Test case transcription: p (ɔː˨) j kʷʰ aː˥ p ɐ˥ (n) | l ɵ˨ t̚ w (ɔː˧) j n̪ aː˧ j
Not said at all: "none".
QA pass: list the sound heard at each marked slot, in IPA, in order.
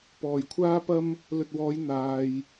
ɔː˨, m, ɔː˨˧

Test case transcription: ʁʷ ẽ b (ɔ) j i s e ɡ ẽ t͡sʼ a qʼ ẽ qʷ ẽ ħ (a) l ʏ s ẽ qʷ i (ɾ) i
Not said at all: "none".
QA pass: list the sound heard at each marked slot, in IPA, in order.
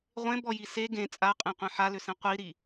ɔ, a, ɾ

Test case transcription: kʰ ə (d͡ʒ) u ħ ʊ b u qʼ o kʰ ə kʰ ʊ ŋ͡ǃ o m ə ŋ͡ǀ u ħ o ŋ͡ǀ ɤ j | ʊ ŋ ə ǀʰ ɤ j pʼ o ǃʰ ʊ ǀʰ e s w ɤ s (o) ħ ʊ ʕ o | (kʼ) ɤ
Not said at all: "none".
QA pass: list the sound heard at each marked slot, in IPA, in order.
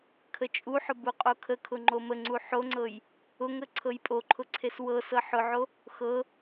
t͡ʃʼ, ɤ, x

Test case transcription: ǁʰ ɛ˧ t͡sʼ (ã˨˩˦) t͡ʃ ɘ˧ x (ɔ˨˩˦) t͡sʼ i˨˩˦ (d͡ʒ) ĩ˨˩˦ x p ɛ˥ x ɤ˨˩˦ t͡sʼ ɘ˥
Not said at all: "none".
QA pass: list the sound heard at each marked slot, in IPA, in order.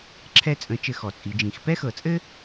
ə̃˨˩˦, ɔ˨˩˦, d͡ʒ

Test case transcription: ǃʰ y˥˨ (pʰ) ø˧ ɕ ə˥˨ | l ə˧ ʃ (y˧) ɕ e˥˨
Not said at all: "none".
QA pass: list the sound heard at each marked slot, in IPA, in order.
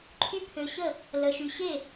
pʰ, y˧

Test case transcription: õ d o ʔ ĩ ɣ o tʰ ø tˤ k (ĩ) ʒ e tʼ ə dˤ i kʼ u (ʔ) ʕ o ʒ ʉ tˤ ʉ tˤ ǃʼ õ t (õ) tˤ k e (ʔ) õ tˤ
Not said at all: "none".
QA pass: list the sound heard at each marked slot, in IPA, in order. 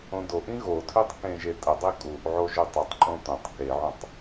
ẽ, ʔ, õ, ʕ

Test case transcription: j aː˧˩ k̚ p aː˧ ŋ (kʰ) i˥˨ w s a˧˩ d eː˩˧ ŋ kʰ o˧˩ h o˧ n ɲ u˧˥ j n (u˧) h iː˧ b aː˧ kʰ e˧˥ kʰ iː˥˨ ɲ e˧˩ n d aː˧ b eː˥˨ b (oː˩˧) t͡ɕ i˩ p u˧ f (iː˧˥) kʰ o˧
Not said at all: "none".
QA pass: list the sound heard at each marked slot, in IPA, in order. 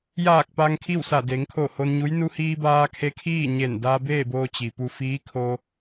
kʰ, u˧, oː˧, iː˧˥

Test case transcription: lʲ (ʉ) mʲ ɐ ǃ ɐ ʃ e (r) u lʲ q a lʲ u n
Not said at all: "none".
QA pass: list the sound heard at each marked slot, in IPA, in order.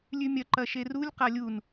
ʉ, r

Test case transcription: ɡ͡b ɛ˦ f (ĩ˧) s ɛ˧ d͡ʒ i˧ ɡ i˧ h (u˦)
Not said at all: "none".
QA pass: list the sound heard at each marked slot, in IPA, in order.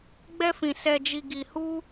ĩ˧, u˦

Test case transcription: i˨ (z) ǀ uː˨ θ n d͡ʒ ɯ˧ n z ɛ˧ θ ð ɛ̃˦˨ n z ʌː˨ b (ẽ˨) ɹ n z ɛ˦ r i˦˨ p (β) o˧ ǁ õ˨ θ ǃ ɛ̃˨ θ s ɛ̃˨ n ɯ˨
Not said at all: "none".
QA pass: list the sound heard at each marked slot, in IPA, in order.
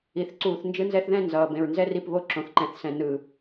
θ, ẽ˨, β

